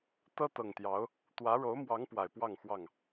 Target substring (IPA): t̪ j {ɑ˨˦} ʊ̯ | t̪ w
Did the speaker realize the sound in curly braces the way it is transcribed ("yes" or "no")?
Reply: yes